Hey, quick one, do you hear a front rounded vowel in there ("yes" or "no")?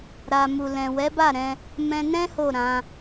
no